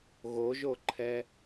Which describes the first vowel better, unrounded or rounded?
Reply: rounded